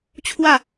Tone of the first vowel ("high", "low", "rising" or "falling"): falling